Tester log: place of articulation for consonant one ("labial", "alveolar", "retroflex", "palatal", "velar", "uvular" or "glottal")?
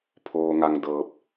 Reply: labial